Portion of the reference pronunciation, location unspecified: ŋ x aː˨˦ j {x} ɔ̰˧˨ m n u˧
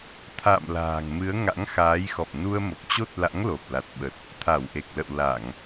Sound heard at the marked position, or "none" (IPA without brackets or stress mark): x